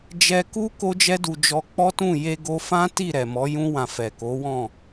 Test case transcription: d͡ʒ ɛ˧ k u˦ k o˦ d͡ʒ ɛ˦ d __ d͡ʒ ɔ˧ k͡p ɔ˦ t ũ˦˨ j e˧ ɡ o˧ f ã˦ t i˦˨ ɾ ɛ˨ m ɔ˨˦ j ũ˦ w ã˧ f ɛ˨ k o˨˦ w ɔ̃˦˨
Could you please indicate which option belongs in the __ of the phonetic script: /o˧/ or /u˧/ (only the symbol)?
u˧